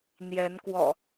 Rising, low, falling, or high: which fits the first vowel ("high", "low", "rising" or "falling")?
rising